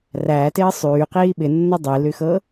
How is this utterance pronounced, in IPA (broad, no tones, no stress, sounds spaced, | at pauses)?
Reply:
r æː t ɪː sˤ yː q iː ɓ ɪ nː ɤ dˤ i l y x ɤ